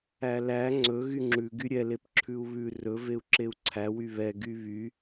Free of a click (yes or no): no